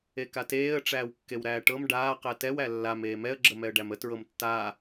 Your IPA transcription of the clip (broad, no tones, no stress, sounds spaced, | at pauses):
e k a t eː ə̯ ʈ͡ʂ æː w kː e w ɾ æː ʈ ɤ m ɖ aː q ɛ t ɛ w æ lː a m eː m ɛ ə̯ ɡ͡ǁ ə m ɛ ə̯ ɖ æ m ə t ɹ ɤ m tː aː